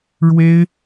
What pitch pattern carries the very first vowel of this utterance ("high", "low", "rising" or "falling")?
high